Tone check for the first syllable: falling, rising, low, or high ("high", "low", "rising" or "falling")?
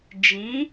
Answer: rising